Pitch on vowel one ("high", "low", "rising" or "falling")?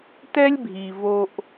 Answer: high